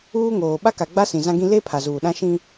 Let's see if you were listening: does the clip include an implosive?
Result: yes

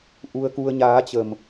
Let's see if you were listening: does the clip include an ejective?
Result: no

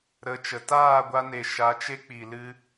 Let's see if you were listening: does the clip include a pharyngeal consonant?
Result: no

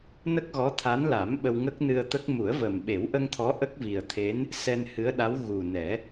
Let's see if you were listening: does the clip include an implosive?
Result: yes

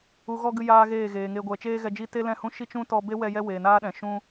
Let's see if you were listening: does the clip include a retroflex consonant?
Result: no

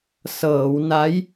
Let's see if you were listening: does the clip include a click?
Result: no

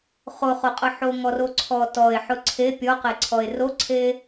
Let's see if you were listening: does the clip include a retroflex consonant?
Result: no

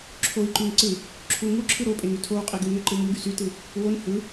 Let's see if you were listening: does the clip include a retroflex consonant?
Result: no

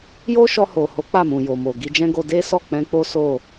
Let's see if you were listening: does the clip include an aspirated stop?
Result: no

